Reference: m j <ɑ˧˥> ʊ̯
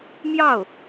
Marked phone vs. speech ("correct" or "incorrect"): incorrect